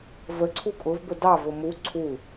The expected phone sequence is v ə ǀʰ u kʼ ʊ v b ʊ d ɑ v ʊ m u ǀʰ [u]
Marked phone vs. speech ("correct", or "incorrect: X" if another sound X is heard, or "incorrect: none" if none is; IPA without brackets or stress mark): correct